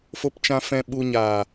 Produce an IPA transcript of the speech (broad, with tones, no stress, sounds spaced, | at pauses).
f o˦ p t͡ʃ ã˦ f ɛ̃˦ ɓ u˧ ɲ aː˨